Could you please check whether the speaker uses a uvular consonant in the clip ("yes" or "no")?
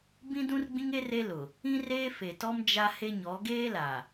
no